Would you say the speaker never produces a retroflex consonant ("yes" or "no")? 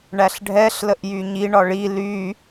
no